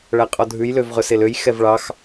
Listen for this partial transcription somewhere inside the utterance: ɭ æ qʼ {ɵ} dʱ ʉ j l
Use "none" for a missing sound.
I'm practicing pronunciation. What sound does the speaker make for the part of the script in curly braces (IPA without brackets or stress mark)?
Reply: ɔ